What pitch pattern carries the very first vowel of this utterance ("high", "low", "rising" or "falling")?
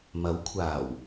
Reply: rising